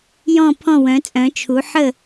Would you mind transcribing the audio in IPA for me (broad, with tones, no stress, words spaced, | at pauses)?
jɔ̃˥˨ pʰɔ̃˥˨wœ̃˩˥ t͡sʼœ̃˩˥t͡ʃʰu˩˥ ħə˥˨